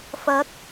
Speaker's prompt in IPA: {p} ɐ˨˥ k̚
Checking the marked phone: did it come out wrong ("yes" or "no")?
yes